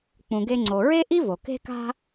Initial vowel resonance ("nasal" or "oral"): nasal